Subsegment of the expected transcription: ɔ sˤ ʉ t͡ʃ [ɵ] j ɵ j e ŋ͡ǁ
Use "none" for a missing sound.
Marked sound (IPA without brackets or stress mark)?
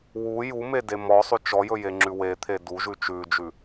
ɔ